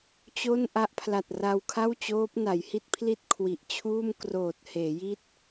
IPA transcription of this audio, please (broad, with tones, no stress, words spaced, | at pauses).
t͡ɕo˥˩n ʔa˦˥ʔpʰla˨˩t̚ra˧w kʰa˥˩wt͡ɕoː˦˥p̚ na˩˦jhi˥˩t̚pʰli˥˩t̚ kʰwi˨˩ʔt͡ɕʰuː˥˩m kroː˨˩t̚heː˩˦ji˦˥t̚